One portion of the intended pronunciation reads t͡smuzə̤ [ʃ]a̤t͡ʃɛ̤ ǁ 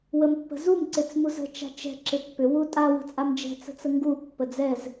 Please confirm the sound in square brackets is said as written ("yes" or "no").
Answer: no